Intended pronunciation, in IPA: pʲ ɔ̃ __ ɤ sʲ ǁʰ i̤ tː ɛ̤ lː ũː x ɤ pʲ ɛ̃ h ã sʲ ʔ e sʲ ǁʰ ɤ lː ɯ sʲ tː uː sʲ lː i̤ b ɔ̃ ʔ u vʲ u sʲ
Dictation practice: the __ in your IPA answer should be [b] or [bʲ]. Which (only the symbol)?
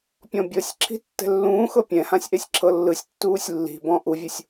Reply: bʲ